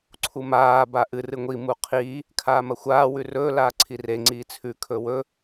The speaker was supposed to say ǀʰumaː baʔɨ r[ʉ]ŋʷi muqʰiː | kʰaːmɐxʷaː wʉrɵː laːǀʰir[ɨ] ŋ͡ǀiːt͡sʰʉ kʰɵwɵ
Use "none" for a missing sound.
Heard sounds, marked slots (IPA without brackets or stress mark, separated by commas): ɨ, e